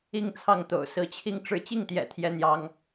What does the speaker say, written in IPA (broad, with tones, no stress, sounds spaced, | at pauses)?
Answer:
i˥˧ ŋ t͡sʰ ɑ˥˩ ŋ t̪ o̰˨˩ ʊ̯ s ɹ̩˧˥ t͡ɕʰ i˥˧ ŋ ʈ͡ʂ ɻ̩˥˧ t͡ɕ i˥˩ ŋ t̪ j ɛ̰˨˩ t̪ʰ j ɛ˥ n̪ j ɑ˥ ŋ